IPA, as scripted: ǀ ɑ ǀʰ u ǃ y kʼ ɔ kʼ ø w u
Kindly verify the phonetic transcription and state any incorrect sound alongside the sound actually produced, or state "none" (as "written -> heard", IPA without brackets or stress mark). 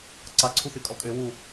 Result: ǃ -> θ